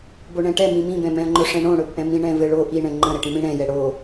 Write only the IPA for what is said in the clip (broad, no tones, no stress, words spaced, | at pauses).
boɳɛ̃ʈɛ mĩmĩbɛ̃ mɛ̃ɐ̯ŋ͡ǃɵʂɛ̃ɳõ ɽɵbʔɛ̃mĩ ɳɛ̃vɘɭo ʔi ɳɛ̃ŋ͡ǃə̃ɾɘʈĩ mĩɽɛ̃jɛ ɽo